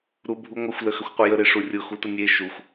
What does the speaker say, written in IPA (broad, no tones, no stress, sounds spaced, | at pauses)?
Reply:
ɾ u bʱ u ŋʷ ə xʷ l ə x ə xʷ qʷ ə j ə ɾ e ʂ u rʲ ʊ x u t ə nʲ e ʃ u xʷ